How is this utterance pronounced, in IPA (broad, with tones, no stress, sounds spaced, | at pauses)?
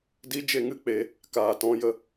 d i˦ d͡ʒ e˦ ŋ ɨ˦ k͡p e˧ | k aː˨ t ɔ̃˦ j ə˧